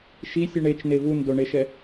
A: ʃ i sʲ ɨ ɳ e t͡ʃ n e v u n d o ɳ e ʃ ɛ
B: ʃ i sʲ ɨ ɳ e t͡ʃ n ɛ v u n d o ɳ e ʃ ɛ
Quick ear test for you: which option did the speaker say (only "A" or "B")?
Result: A